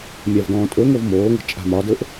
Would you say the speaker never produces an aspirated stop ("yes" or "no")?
yes